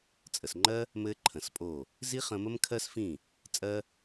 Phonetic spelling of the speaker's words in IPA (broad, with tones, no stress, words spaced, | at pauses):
t͡sʼə˨sŋ͡ǃɜ˦ | mɘ˦ǃʰə̃˨spʼo˦˨ | zi˦ χə̃˧mə˦mkʰɜ˦sfĩ˦˨ | t͡sʼɜ˦